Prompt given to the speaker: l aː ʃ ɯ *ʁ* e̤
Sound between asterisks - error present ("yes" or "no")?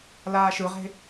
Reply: no